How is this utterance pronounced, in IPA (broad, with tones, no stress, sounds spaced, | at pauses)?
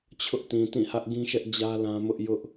t͡ɕʰ ʊ˦ ʔ t ĩ˨ t ĩ˦˨ h ä˦ ʔ ɡ ĩ˦ ʃ ɛ˦ ʔ d͡ʑ ä˦ l ã˦ m ʊ˦ ʔ j ʊ˦ ʔ